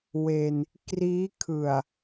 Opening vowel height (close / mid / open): mid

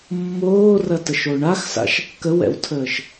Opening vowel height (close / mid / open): mid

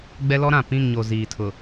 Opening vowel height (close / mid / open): mid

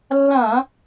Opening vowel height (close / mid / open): open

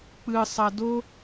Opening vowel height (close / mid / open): close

